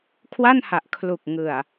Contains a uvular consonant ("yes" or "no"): no